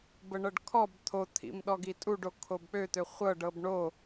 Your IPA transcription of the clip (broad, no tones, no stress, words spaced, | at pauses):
bəɳɤɖkʰɔb t̪ʰot̪ʰḭm ɗɔɡitʼuɖo kʰobk͡pøt̪ø χʷɤɖɤb ɳo